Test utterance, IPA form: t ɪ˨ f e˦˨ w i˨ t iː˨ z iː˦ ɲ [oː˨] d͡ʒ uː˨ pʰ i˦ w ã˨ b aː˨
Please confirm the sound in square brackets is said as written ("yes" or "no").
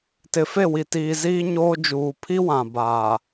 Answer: no